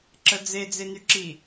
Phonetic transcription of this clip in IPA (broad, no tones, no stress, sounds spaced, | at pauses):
ǁ ə d͡z e d͡z e n y ǁ i